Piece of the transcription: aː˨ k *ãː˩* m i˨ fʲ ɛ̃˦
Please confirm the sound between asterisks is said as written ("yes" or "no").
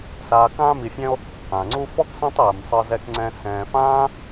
no